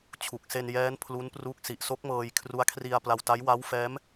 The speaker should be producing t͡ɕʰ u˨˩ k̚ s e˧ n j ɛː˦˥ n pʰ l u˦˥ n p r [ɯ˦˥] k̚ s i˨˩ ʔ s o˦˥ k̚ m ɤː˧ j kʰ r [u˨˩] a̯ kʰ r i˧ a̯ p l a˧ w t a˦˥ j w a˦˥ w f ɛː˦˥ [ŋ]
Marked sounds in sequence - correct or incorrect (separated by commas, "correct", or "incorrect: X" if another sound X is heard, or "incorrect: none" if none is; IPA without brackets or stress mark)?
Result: incorrect: u˦˥, incorrect: u˦˥, incorrect: m